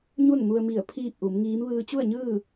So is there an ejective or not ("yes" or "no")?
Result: no